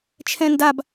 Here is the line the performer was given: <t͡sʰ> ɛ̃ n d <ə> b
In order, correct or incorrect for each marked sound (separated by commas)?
incorrect, incorrect